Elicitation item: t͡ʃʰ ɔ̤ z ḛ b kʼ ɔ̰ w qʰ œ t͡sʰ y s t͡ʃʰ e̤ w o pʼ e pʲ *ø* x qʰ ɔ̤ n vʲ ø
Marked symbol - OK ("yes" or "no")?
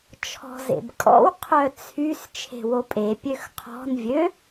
yes